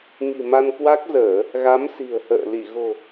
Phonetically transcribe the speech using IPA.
ŋ i̤˨˩ m a˧ n k w a˦˥ k̚ z əː˧˩˨ | ɣ a˨˦ m s i̤˨˩ ə̯ h ə̰ː˧˨ l i˧˩ ɣ o̤˨˩

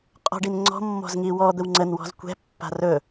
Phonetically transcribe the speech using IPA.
qʼ ɔ̤ ɖ i n ŋ͡ǀ ɔ̤ mː ɔ̤ z ŋ i w ɔ d̪ ə w ŋ͡ǀ ə n w ɔ̤ z kʷ ɛ̤ pː a̤ r ɵ

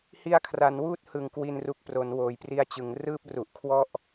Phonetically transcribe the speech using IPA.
h i˧ a̯ kʰ r a˩˦ n w uː˥˩ t̚ h ɯ˨˩ ŋ k w i˧ n r u˨˩ k̚ p r o˩˦ n w oː˩˦ j p r i˧ a̯ t͡ɕ ɯ˩˦ ŋ r ɯː˥˩ p̚ r u˨˩ ʔ kʰ w ɔ˥˩ ʔ

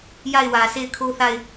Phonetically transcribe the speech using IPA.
j a˦˨ ɪ̯ w ä˨ s e˦˨ ɪ̯ kʰ o˦ θ a˦˨ ɪ̯

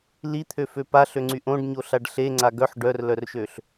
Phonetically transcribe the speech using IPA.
l i t̪ʰ ø f ø p a ɬ ø ŋ͡ǀ y ʔ õ ɖ ɲ o ɬ a ɖ ɬ e ŋ͡ǀ a ɡ œ ħ ɖ œ r l œ r ʃ ø ɬ

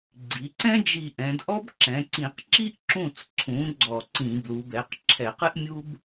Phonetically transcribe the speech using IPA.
ɡ͡ǀ i˩˧ ǀ ɛ̃˥ d͡ʒ i˧˩ ʔ ɛ̃˩˧ d ʔ ɔ˥ b ǁ ɛ̃˩˧ ǀ ĩ˧˩˧ q ǁ i˥ ʔ ǁ ũ˧˩ t͡s ǀʰ ũ˩˧ ɡ͡ǀ ɔ˧˩˧ ǀ ĩ˧˩˧ b l u˩˧ b ɛ˩˧ q ǁʰ ɛ˧˩˧ q ɨ˥ ʔ mʲ u˥ b

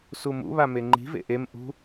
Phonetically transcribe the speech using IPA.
s u m ṵ β a m e ŋ͡ǃ i̤ v ḛ ʔ e m ʔ ṳ

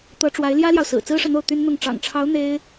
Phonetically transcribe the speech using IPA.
t̪ ɤ˧˥ ʈ͡ʂ w a˧˥ ɪ̯ l j ä˥ l j ɑ˨ ʊ̯ s ɹ̩˨˩ t͡s ɹ̩˥ ʂ ɤ˨ n̪ o˥˩ ʊ̯ t̪ y˥ n n̪ ʊ˥˩ ŋ ʈ͡ʂ ɑ̰˨˩ ŋ ʈ͡ʂʰ ɑ˧˥ ʊ̯ n̪ e˥ ɪ̯

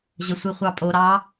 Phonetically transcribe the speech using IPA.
ʑ ə sʷ i χʷ ɑ pʼ o ɾ ɑ

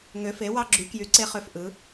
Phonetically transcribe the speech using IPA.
ŋ ø˨˥ f e˨˥ w ɑ˦ ɡ͡ǁ y˨˥ k j y˨˥ ǀ e˦ χ ø˦ f ʔ ɯ˨˥

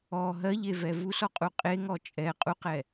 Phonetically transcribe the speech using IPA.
ɔ ɦ ɜ ʎ e v ɛ v u s ɔ qʼ u qʼ e ŋ ɔ t͡ʃʼ ɛ qʼ u q ɛ

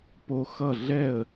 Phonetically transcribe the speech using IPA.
p o˦˥ x ʌ˥˨ ɮ ɛ˥˨ ə̯

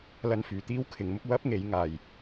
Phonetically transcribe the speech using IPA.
l ɐ˧ n f yː˨ t̪ iː˥ w kʰ ɪ˨˥ ŋ m ʊ˥ k̚ w ɐ˥ p̚ ŋ e˨˥ j ŋ aː˧ j

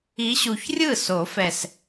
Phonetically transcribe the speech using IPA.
i˨˦ ɕ u˨˩ ç rʲ ɯ˥˩ s o˨˩˦ f ɛ˨˩ s

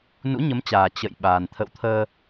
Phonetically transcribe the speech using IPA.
n ṵ˧˥ ɲ ə˨˦ m t͡ɕ aː˨˩ t͡ɕ ə̰˧˨ j ɓ aː˨˩ n t̪ʰ ə̰˧˨ w t̪ʰ əː˧

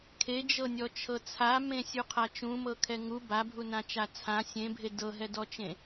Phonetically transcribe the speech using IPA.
kʰ e d͡ʒ ɤ nʲ ɔ t͡ʃʰ ɤ t͡sʰ a m ẽ sʲ u qʰ a t͡ʃ ũ m ɤ kʰ ɛ ŋ u b a bʱ u n ã t͡ʃ a t͡sʰ ã sʲ ẽ bʱ e d ɤ ɦ ɛ d ɔ t͡ʃ ẽ

